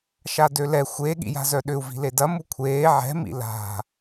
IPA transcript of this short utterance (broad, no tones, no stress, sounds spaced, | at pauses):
ʃ a d ø l ɛ xʷ e ɠ ḭ j a̤ z œ ɗ ʏ u̯ v i̤ l e d ɐ m u kʷʰ eː ʕ ɛ̤ m ḭ l a̤